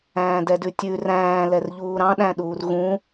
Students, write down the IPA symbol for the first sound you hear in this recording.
æ̃ː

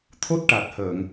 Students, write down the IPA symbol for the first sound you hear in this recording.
t̪ʰ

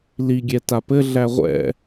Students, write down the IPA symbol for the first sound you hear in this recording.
l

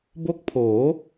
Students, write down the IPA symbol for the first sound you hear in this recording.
b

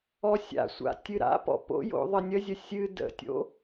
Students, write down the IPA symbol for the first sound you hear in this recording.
ɔ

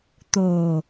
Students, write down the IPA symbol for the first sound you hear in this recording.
t̪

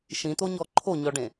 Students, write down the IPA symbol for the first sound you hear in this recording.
ʃ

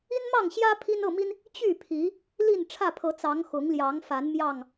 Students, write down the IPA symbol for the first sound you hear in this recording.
i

